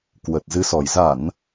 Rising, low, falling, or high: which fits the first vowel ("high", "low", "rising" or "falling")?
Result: low